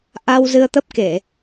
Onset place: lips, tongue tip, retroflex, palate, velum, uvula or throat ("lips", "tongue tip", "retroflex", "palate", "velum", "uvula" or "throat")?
throat